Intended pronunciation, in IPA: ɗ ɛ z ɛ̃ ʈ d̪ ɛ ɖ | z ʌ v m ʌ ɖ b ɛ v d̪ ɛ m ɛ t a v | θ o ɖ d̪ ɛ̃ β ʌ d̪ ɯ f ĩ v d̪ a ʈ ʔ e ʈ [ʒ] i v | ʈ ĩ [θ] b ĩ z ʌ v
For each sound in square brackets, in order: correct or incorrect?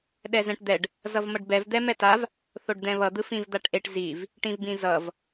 incorrect, incorrect

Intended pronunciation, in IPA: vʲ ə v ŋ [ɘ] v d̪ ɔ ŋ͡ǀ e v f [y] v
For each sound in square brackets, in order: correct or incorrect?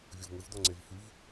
correct, correct

